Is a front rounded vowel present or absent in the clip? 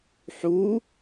absent